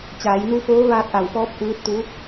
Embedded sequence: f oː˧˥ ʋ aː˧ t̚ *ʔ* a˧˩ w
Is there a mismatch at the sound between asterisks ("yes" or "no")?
no